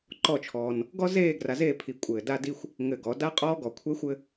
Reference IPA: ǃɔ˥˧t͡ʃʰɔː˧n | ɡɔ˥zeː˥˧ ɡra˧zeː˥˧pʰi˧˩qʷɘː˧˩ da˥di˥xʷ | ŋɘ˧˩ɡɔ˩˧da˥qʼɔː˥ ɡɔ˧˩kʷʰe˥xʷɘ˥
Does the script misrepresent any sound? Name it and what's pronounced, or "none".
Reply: qʷ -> kʷʼ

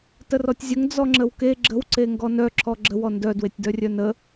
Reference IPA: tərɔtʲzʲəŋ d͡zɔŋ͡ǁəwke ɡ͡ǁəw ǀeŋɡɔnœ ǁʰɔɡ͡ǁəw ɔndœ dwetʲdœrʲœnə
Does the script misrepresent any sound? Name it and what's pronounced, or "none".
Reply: none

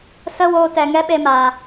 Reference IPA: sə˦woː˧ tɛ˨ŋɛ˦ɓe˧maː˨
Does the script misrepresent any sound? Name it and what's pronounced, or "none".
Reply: none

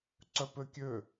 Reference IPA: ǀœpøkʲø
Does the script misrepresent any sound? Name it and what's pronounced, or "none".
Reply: none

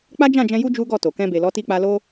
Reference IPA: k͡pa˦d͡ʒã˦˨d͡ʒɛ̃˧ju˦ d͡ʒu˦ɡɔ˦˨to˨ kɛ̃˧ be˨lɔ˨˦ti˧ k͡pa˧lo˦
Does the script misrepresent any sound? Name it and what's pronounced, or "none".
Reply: none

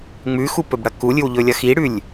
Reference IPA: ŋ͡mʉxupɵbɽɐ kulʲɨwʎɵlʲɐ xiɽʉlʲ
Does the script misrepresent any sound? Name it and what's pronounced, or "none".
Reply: none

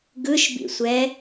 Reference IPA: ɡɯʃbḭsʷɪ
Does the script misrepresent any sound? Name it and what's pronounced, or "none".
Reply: ɪ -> ɛ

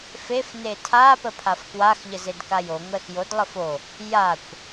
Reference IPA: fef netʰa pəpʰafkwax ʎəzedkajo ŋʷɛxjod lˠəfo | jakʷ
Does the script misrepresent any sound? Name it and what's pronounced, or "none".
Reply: none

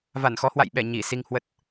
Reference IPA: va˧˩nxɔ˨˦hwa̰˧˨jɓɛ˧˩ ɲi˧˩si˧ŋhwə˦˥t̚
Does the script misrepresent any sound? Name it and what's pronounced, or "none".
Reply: none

